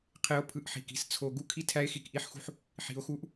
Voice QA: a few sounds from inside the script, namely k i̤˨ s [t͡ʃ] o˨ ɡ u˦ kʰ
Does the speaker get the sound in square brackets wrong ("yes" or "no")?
yes